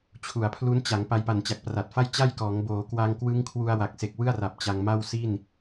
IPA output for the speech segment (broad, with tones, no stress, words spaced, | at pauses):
t͡ɕʰu˩˦a̯pʰlu˦˥n t͡ɕa˩˦ŋ pa˧jpa˨˩nt͡ɕa˨˩k̚ pra˨˩t̚fa˥˩j t͡ɕa˥˩jkɔː˩˦ŋ boː˩˦kwa˧ŋ kwɯ˦˥ŋkʰwu˧a̯ wa˨˩k̚se˨˩k̚wɯ˥˩a̯ra˨˩p̚ t͡ɕa˧ŋma˥˩wsi˥˩n